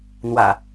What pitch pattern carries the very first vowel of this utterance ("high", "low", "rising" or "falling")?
low